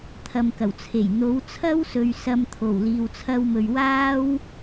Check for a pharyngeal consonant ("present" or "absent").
absent